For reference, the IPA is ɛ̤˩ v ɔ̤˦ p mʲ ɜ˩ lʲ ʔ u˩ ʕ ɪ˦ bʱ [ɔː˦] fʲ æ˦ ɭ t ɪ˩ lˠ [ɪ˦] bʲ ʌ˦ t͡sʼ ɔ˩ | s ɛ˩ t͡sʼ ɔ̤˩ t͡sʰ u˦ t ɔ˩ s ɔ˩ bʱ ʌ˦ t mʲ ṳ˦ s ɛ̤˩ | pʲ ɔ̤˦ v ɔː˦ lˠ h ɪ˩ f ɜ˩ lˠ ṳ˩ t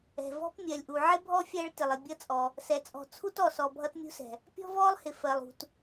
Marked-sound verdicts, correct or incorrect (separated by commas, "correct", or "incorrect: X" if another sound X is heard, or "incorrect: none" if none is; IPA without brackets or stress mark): incorrect: ɔ˦, incorrect: ɪ˩